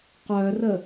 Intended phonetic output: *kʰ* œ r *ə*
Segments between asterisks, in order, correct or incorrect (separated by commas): incorrect, correct